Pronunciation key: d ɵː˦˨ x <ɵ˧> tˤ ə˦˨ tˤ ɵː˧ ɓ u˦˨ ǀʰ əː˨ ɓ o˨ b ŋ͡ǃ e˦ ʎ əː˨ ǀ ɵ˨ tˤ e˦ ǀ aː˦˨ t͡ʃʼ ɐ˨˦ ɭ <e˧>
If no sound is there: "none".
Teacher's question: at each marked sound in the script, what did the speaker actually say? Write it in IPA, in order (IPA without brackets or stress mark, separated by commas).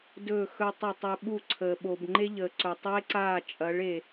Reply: ɵ˧, e˨